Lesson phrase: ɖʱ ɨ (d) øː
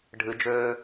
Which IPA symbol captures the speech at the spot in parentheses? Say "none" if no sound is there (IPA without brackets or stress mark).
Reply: d͡ʒ